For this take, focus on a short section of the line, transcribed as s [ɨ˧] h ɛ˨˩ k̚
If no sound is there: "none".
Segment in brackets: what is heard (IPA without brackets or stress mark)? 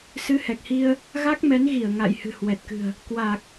ɨ˨˦